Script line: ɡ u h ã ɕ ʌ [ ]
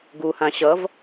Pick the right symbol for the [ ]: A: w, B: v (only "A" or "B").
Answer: B